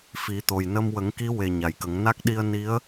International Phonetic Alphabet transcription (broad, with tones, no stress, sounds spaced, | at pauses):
f i˨˩˦ t̪ o˨˩ j n ə˧ m w ə˨˩˦ ŋ k i˧˥ w e˨˩ ɲ a˨˩ j k ə˨˩˦ ŋ n a˦˥ k̚ ɗ i˧ ə̯ n i˧˥ ə̯